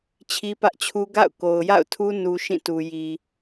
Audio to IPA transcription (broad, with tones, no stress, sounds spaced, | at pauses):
t͡ɕʰ i˦ p ä˦ ʔ t͡ɕʰ u˦ ɡ a̰˦˨ ʊ̯ k o˨ ʊ̯ j a̰˦˨ ʊ̯ tʰ u˦ n u˦ ʃ ĩ˦˨ t u˨ j i˨